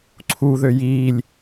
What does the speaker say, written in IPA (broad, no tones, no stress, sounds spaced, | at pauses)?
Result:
ǀʰ u ð ø j iː lʲ